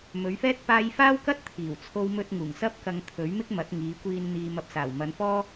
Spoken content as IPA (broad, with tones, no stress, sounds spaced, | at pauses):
m ɵ˨˧ ɥ f ɛː˥ t̚ p aː˥ j f aː˥ w k ɐ˥ t̚ t̪ʰ iː˨˩ w t͡sʰ o˧ w m ɵ˧ t̚ ŋ uː˨˩ ŋ s ɐ˥ p̚ k ɐ˧ ŋ t̪ʰ ɵ˨˥ ɥ m ɪ˥ k̚ m ɐ˨˥ t̚ ŋ iː˨˧ kʷ iː˧ n n̪ iː˧ m ɐ˧ p̚ s aː˨˩ w m ɐ˨˧ n f ɔː˥